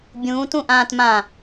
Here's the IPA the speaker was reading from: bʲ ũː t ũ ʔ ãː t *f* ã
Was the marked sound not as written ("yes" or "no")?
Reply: yes